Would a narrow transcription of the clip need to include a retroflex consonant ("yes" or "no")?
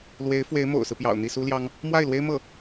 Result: no